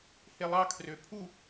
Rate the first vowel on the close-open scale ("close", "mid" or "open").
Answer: mid